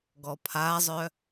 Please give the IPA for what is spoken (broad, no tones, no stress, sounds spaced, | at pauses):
ɡ ɔ pʰ a zˤ œ